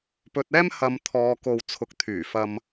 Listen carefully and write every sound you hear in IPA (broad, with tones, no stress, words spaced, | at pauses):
pɵ˧t̚ɛː˥m hɐ˨m t̪ʰɔː˧ ko˨wt͡sʰʊ˨k̚t̪ʰyː˨˩ fɐ˨m